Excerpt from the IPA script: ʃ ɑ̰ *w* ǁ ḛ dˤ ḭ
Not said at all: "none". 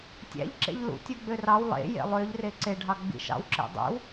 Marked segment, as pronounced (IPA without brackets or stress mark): w